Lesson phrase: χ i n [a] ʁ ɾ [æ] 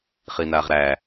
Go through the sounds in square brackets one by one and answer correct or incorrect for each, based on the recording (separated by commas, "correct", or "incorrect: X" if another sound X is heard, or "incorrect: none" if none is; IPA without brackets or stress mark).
correct, correct